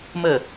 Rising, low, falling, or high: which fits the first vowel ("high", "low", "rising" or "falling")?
falling